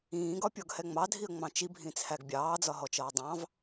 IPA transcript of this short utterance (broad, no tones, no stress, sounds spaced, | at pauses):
ĩː ɡ ɒ pʲ ɔ ɡ h ɛ ŋ͡m ɑ dʱ i ə̯ ŋ͡m ɑ̃ t͡ʃ i bʱ ĩ t͡sʰ æ ɡ bʲ ɑː d͡z ɒ ɦ ɔ t͡ʃ ʌː dˤ ɑ̃ v